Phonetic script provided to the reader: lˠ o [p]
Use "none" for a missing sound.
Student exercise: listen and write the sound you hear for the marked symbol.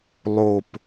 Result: p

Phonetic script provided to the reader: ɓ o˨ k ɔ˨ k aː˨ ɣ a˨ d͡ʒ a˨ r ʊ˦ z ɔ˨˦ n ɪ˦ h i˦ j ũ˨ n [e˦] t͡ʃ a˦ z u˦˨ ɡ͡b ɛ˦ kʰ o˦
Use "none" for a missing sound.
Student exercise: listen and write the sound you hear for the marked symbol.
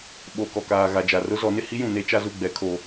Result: e˦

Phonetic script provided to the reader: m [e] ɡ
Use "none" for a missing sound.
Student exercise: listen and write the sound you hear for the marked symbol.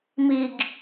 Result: i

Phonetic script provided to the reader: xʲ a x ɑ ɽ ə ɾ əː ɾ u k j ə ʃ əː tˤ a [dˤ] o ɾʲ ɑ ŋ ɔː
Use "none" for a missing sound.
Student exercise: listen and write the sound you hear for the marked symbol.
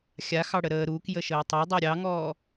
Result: dˤ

